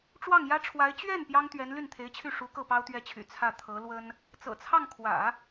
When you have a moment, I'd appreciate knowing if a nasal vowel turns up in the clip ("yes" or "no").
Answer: no